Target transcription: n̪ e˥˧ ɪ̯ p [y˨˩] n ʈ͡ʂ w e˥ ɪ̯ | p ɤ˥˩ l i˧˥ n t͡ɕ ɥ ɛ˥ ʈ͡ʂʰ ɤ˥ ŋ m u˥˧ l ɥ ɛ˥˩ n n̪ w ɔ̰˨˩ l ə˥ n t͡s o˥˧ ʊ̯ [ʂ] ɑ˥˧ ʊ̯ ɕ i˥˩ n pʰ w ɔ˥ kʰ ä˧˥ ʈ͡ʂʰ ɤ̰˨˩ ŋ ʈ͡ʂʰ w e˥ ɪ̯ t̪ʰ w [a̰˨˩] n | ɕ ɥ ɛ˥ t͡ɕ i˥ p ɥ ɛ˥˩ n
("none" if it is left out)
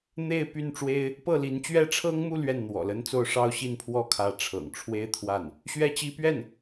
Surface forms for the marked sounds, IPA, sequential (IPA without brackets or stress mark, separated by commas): y˥˩, ʂ, a˥˩